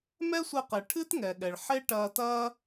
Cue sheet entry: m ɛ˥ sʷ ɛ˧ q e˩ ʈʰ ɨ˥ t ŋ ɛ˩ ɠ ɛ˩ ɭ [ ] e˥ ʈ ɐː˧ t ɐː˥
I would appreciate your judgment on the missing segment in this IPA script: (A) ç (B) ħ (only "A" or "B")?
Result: B